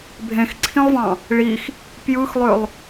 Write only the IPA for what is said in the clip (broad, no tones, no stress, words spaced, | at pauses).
bʱẽxǀʰĩlˠvɑ̃ | ɭix | pjɯxlˠølˠ